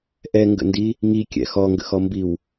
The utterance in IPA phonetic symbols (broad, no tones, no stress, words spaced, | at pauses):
ʔɛŋɡə̰ndi | ŋikʲɛ̰ xɔŋɡə̰xɔmbiw